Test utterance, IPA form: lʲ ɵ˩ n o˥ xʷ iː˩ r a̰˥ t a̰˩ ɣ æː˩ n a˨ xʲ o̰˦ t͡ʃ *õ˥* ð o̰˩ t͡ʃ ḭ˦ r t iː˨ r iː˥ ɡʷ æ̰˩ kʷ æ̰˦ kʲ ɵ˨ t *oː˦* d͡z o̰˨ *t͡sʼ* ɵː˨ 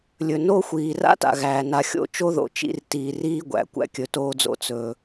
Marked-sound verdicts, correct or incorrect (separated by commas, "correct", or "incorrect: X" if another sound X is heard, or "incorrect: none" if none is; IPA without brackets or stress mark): incorrect: o˥, correct, incorrect: t͡s